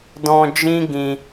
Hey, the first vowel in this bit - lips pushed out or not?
yes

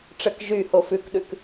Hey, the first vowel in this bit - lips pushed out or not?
no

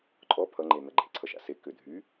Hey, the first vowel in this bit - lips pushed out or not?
yes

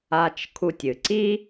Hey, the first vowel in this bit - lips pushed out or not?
no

